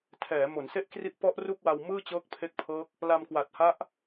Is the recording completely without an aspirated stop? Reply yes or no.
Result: no